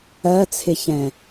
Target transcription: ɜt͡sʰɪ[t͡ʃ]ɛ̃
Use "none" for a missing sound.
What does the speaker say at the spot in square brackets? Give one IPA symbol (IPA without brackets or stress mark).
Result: ç